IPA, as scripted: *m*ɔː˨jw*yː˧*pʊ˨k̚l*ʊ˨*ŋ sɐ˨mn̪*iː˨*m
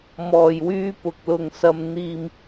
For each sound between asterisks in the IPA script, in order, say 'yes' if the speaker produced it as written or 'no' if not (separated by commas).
yes, yes, yes, yes